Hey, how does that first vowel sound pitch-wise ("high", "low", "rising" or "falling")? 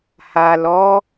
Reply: low